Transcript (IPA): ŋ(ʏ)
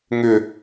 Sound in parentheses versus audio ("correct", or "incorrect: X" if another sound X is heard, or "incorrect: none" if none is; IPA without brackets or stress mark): correct